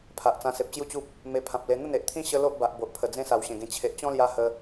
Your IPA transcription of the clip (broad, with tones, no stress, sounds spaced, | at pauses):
pʰ a˨ ʔ t͡s ã˧ s e˨ p̚ t͡ɕ j u˥˧ t͡ɕ u˦ p̚ | m e˧ pʰ ã˨ p̚ l e˧ n̪ ə˥˧ n e˨ ʔ t̪ʰ ĩ˦ ɕ ə˦ l o˦ ʔ b a˨ ʔ b o˨ ʔ pʰ ə˨˩ d͡z ẽ˦ s a˨˩ w ɕ ẽ˨˩ ɡ ẽ˧ t͡ɕʰ e˨ ʔ t͡ɕ ɔ̃˦ l j a˧ h ə˧